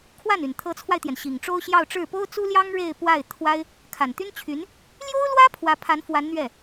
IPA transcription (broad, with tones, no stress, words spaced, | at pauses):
kʰwa˥˩ny˨˩n t̪ʰɤ˧˥t͡sʰwa˧ɪ̯t̪jɛ˩n ɕi˨˩ŋʈ͡ʂo˥ʊ̯ɕjɑ˥˧ʊ̯ʈ͡ʂɻ̩˥˩ po˥ʊ̯t͡su˥ljɑ˥ŋ ɻe˥˧ɪ̯pwa˥˩ɪ̯ t̪ʰwa˥ɪ̯ | kʰa˨˩nt̪y˥n t͡ɕʰy˧˥n | ljo˥ʊ̯lwä˥ pʰwä˧˥pʰa˧˥nfwa˧˥n n̪ɥɛ˥˩